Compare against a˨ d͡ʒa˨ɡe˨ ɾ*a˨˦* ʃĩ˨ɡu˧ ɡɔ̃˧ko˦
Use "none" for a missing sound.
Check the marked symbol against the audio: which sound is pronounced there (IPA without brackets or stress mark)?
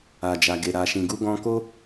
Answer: a˨